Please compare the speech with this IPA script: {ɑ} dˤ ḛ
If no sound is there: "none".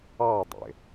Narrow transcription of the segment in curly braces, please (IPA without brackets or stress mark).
ɑ